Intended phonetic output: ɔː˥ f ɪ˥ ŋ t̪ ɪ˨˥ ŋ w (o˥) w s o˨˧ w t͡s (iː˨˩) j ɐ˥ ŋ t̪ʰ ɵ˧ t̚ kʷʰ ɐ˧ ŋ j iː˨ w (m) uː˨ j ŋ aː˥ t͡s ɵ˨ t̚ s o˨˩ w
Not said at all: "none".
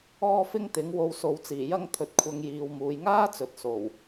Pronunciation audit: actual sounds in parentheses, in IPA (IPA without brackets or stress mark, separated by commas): o˧, iː˨˩, m